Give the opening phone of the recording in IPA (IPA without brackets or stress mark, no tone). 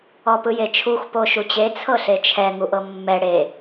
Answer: ɔ